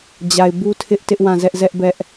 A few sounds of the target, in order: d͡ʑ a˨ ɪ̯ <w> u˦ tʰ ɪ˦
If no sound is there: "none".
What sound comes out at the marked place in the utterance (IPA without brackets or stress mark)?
b